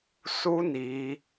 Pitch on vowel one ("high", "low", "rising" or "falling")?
high